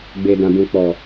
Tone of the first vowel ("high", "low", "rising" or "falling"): low